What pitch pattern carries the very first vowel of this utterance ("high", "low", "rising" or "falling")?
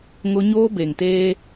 high